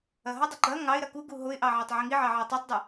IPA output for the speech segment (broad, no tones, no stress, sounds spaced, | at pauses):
ɐ ɦ ɐ dˤ ɐ ɡ͡ǃ ɐ ŋ ɑ ɪ̯ ɾ ɐ k u ɡ u ɦ o ɪ̯ ʔ ɑ ʕ ɑ tˤ ʕ i ŋ i ʕ ɑ ʕ ɑ tˤ o tˤ dˤ ə